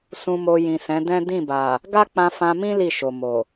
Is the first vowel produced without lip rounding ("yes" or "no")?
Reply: no